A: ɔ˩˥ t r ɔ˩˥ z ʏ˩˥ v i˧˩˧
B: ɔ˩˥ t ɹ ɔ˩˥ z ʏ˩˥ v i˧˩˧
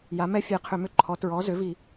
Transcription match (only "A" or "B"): B